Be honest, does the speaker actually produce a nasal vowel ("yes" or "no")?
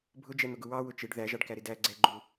no